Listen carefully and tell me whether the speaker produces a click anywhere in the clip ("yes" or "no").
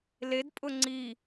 yes